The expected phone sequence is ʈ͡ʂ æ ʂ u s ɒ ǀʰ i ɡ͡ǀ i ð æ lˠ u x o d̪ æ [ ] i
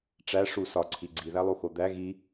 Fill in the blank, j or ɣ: ɣ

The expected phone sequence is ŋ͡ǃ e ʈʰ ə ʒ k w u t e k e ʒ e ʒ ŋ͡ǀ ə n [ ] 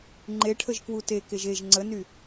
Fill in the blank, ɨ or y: y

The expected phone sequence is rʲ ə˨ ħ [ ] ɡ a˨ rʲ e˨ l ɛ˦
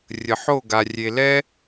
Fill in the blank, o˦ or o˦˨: o˦˨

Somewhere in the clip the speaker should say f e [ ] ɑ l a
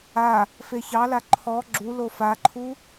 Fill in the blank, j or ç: ç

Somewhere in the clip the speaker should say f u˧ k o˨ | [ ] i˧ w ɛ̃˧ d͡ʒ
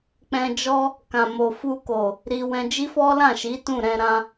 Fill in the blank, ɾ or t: ɾ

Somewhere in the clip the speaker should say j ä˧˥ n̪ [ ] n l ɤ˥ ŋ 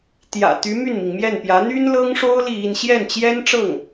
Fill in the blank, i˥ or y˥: y˥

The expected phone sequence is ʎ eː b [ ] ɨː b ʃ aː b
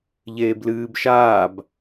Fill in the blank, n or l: l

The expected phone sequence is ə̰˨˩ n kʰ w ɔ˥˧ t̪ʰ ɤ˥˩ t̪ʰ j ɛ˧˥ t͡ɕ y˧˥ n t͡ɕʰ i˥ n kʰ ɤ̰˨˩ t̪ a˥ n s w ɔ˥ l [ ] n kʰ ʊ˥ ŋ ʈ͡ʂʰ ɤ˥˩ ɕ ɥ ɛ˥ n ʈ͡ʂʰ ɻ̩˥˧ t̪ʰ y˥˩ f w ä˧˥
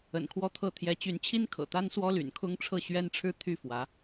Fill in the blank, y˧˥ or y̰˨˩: y̰˨˩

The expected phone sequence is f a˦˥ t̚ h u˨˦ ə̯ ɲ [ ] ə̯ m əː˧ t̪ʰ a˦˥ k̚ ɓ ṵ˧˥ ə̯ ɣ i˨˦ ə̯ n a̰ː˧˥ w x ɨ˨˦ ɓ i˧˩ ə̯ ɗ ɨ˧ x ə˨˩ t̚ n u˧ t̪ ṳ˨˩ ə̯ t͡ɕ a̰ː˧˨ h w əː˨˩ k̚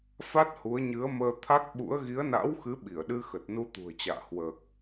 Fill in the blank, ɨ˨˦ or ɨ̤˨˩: ɨ˨˦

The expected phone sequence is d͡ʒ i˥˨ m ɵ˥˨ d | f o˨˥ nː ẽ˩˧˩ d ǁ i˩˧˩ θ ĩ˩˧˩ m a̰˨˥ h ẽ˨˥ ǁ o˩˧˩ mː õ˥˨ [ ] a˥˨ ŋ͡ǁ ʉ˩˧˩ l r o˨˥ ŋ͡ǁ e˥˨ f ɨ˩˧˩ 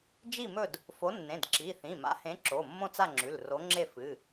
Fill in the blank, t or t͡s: t͡s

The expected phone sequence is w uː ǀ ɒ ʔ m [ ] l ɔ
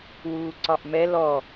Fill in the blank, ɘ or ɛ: ɛ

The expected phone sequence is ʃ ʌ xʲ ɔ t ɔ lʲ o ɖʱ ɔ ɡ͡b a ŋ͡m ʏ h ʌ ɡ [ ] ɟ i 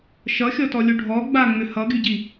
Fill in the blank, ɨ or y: y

